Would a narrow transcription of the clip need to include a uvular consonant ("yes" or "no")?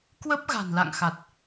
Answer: no